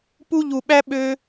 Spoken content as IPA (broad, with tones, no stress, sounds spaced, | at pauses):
p u˧ ʎ u˨ ɓ æ˧ ɓ ø˧